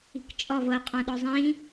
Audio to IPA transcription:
i̤kt͡ʃʼɔ vɤqʼɔ̃ ɗɔzˤĩ

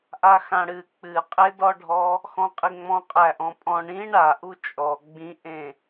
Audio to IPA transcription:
ʔaxãɽɨ k͡pɨqʼedɔɖʱɔ | xɔ̃qʼiŋ͡mɔ̃ qʼæʔɔ̃pʼɔ̃ ɳĩ ɳa ʔut͡ʃʼɔ ɡ͡bĩʔẽ

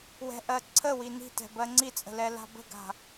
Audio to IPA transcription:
wɛ̤ʔɜ ǀʰəwi ni̤tɛ̤ bɜŋ͡ǀit͡sʼə̤ lɛla̤bə̤ɡa̤

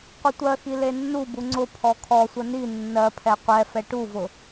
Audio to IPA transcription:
qʷətʷɜxi lenːubu ŋ͡ǀʊ pʰɔkʰɔsʷə ni nːɜpʰɛ qʷɛfɛ ʈuvʊ

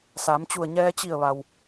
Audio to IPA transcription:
sa˩˧m t͡ɕu˧˩ə̯ɲɛː˧ t͡ɕi˧˩ə̯ʋa˩w

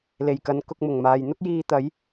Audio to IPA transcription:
le˨˩jkɐ˨˧n kʊ˧k̚mʊ˨˩ŋmaː˨j n̪ʊ˥k̚jiː˧ t̪ɐ˨˥j

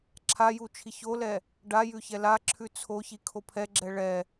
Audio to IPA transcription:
ǁʰa jut͡ʃʰiçolɛ | ɖa jʉçɛlaǁʰʉ t͡sʰoçi kʰopʰɛɡ͡ǁɛ ɭɛ

